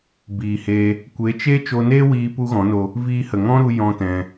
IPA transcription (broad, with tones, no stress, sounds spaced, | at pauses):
b iː˨ h eː˧ | kʷ e˨˦ t͡ʃ e˦ t͡ʃ o˧ n eː˦ w iː˧ p u˦ ɣ ɔ̃˨˦ n o˧ | v iː˧ h ə˨ ŋ ɔ̃˦ ɾ u˧ j ɔ̃˦ t ɛ̃˧